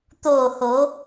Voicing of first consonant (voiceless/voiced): voiceless